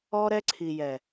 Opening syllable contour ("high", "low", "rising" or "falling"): high